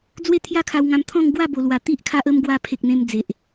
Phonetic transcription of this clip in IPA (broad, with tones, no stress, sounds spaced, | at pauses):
d͡z w e˦ t̪ʰ j a˦ kʰ a˧ w ŋ ã˧ m t̪ʰ ɔ̃˥˧ ŋ ɡ w a˥˧ b o˨˩ l w a˨˩ t̪ i˦ ʔ kʰ a˦ ʔ ə˦ m ɡ w a˧ pʰ e˨ k̚ n̪ ẽ˧ m d͡z e˨ ʔ